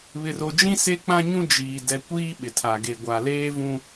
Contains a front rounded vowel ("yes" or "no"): no